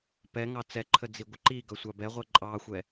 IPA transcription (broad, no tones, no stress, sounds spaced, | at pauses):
p ɛ ŋ ɑ t͡s ɛ ǃʰ ə d͡z i ɡʷ ə ǃ i ɡ ʌ sʷ ɑ b ɛ ʁʷ ɛ ǃʼ ɑ xʷ ɛ